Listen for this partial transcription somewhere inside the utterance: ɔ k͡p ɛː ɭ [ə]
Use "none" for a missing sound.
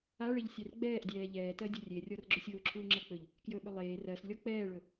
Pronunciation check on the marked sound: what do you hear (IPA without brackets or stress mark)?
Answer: ɵ